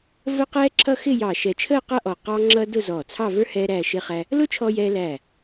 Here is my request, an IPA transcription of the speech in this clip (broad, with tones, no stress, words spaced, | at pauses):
və˥qɛː˥ǁʰʌ˥ xɪ˥˧jɑ˧˩ ʃɛ˧˩t͡ʃʰəː˥˧qʌ˥˧ʔɔ˧˩ qɑ˥ŋ͡ǁʌ˥ dʊ˥˧zɔː˧˩t͡sʰɑ˥˧və˞˥ hɛː˥ɾæː˥˧ʃɪ˥χæ˥ | lʊ˥ t͡ʃʰɔ˥jɛː˥ læː˧˩